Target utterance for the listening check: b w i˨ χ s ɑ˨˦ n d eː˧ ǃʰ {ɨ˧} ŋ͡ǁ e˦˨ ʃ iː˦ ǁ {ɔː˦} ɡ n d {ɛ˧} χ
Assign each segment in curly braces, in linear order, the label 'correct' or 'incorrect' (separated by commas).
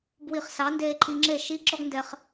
incorrect, incorrect, correct